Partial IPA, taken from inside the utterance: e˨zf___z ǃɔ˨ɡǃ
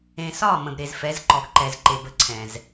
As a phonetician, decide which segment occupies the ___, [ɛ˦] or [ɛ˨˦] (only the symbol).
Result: ɛ˨˦